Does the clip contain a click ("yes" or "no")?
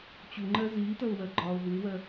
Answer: yes